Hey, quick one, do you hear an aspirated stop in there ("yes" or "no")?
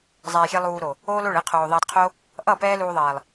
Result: yes